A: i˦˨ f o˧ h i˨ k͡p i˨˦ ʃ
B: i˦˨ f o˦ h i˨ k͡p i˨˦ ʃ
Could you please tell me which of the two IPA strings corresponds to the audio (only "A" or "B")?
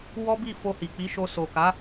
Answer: A